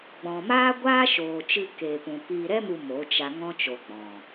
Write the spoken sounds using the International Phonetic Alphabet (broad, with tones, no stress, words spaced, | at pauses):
ɡ͡bɔ̃˨maː˦ ɡʷaː˦ʃoː˨t͡ʃɨ˧ keː˨pũ˨ piː˨ɾɛ˧mu˨ mo˨˦t͡ʃa˧ ŋɔ̃˦t͡ʃo˨ɡ͡bɔ̃˨